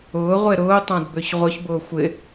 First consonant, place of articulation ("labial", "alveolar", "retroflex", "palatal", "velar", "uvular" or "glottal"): uvular